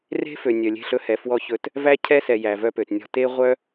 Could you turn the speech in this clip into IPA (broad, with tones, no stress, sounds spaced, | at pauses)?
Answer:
r e̤˦ f ø˨ nʲ œ˨ lʲ e̤˦˨ ɬ ɵ˦ h ɛ˨ f w ɔ˦ ç ɵ˦ t | v æ˦ cʰ ɛ˦ s ɛ˨ j æ˨ v œ˦ p ø˨ t nʲ ɔ̤˦ t e˦ ʁʷ œ˦